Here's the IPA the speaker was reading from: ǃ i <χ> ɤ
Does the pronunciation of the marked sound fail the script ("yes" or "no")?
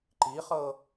no